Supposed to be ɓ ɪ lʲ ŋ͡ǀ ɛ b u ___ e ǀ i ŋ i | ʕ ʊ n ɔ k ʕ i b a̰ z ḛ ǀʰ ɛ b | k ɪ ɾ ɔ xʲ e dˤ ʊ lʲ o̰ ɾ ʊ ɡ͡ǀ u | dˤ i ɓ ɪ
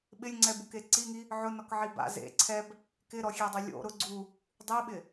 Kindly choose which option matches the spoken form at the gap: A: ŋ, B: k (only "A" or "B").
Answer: B